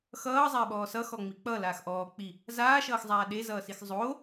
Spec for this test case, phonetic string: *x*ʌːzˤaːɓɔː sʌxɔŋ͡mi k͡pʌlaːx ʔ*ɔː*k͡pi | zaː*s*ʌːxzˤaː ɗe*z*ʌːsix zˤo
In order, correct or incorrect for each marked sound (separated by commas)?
correct, correct, incorrect, correct